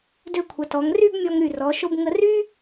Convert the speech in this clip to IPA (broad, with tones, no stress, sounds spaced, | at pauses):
d ø˧ kʷʰ ə˩˧ t ɔ˩˧ ŋ r y˥˧ b mʲ ɔ˧ ŋ ɾ y˧˩ r ɔ˩˧ ʃ o˧ b ŋ ə˧ r y˥